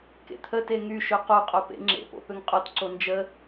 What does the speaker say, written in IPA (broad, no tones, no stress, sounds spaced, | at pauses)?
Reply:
k ḛ t̪ʰ ə t e ŋ y ʃ ø q o qʼ o p ḛ ŋ͡ǁ ḛ p o̰ p ø ŋ qʼ o t ǀ o n d͡ʒ ə